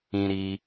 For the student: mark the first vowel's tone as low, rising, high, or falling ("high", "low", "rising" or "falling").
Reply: high